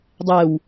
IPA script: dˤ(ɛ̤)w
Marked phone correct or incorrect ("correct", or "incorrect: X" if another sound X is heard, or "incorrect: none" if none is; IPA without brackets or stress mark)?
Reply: incorrect: ɛ